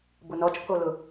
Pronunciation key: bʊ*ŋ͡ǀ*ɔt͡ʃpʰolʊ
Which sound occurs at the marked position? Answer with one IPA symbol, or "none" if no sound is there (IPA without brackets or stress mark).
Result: n